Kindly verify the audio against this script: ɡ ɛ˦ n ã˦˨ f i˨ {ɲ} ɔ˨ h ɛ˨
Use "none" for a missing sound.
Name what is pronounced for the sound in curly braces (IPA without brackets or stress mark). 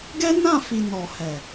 n